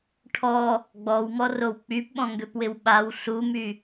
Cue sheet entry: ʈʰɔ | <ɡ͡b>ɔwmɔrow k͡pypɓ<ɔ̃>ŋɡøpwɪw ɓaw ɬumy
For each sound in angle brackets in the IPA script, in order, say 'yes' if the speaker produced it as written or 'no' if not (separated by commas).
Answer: yes, yes